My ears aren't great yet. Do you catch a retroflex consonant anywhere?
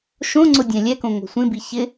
no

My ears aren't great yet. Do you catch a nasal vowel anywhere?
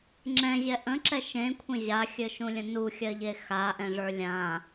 yes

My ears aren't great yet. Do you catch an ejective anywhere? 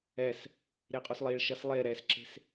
yes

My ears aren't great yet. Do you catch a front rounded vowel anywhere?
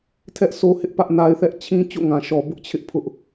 no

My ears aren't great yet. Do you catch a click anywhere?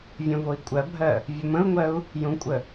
no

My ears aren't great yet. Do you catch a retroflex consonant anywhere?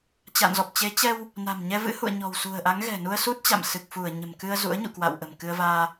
no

